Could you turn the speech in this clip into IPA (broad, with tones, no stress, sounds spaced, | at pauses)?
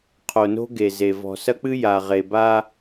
qʰ o˨ n o̤˦ ɡ e˨ z e˨ v ɔ̤˨ s ɐ˦ k͡p ɨ˦ j a˨ ʁ e˨ b a˦